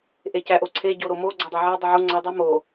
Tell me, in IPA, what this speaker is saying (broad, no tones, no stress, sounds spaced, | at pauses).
ʔ e c æ ʔ o ǀʰ e ɟ o ɾ o m o ɡ͡ǀ o dˤ e ʕ e dˤ u ʕ u ŋ͡ǀ ɒ dˤ u m o